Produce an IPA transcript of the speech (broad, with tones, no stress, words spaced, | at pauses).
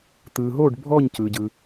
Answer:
t̪ɯː˨ɦoː˥˨ɖ bʱɔː˥˨ɲcɯː˨ɟɯ˨